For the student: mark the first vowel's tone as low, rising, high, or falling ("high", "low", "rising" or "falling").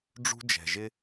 high